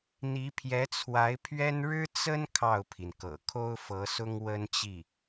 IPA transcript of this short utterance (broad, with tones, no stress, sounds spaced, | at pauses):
n̪ i˧˥ pʰ j ɛ˧˥ t͡sʰ w a˧˥ ɪ̯ pʰ ɥ ɛ˥ n ɻ ɻ̩˥ t͡s ə˥ n kʰ ɑ˥˩ ʊ̯ pʰ i˩ n k ɤ̰˨˩ kʰ o˥ ʊ̯ f ɤ˧˥ s ʊ˥ ŋ w ə˥ n t͡ɕ i˥˩